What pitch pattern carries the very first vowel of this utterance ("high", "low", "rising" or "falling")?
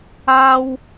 high